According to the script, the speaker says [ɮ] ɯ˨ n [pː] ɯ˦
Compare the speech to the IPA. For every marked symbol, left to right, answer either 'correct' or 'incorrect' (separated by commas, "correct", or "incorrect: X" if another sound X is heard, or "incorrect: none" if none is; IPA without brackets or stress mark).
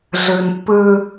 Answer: correct, correct